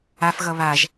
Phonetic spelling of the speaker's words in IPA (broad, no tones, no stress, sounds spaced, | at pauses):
a f ɣ ʌ β a ʒ